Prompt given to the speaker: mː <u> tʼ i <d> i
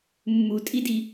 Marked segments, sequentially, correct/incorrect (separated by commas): correct, correct